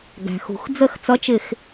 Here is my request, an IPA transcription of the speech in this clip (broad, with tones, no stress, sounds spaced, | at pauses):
ɡ æ̤˩ x ṳ˩ x d͡z ə˥˩ x t͡s ʌ˨˥ t͡ʃ ɪ˧˩ x